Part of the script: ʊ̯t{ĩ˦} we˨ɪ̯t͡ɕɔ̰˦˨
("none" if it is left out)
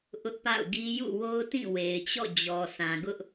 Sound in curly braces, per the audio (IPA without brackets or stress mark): ĩ˦˨